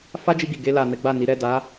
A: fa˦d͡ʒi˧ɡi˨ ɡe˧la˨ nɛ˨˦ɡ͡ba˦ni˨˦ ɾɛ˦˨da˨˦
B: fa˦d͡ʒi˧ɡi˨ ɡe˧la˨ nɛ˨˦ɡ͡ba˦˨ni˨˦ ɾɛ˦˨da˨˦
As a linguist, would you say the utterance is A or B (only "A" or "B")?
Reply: B